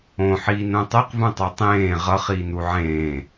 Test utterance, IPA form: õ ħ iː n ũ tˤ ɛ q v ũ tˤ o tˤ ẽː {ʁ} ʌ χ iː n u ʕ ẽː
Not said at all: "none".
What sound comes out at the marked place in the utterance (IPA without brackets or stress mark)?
ʁ